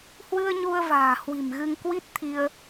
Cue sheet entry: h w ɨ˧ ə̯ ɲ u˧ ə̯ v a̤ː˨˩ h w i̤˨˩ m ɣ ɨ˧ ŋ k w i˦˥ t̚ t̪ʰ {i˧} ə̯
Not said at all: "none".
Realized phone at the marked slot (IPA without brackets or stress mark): i˧